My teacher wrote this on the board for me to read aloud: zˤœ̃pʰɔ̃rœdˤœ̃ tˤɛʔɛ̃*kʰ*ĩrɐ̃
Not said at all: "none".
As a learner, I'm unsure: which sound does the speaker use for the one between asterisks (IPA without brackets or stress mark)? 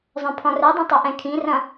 kʰ